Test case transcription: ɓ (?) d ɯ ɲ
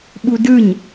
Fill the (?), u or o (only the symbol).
u